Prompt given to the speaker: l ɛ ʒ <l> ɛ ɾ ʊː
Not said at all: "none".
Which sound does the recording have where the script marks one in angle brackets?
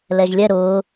lʲ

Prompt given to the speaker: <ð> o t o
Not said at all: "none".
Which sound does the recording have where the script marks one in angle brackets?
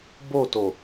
b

